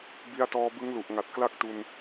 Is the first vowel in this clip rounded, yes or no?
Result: no